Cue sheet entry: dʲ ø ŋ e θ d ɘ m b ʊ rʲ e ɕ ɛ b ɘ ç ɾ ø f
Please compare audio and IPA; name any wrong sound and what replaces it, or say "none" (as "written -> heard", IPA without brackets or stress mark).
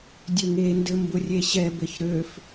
θ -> n